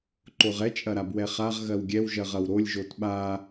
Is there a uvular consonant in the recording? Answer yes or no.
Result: yes